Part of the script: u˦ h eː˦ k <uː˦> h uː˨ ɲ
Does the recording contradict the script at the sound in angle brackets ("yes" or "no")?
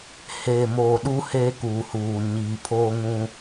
yes